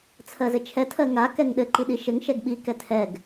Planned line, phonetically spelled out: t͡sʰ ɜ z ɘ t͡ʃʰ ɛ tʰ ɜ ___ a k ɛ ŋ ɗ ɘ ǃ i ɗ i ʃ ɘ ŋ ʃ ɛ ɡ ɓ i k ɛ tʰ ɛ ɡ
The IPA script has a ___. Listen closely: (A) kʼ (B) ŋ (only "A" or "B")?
B